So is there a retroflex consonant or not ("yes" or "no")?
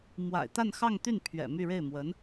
yes